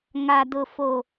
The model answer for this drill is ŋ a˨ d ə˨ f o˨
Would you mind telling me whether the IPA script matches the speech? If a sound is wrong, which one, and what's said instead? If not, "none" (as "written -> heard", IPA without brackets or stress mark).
ə˨ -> ʊ˨